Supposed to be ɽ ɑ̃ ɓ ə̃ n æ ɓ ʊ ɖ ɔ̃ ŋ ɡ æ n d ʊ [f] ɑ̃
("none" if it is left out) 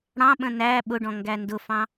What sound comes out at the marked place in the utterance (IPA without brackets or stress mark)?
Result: f